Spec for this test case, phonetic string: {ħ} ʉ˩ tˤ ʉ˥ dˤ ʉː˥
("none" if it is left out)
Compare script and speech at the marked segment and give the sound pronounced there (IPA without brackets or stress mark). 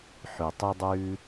ħ